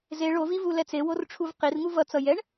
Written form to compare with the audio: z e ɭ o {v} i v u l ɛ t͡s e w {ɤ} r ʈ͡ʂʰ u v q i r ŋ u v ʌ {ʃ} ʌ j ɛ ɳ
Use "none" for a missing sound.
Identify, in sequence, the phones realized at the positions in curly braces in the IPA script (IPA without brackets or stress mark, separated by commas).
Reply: v, o, t͡s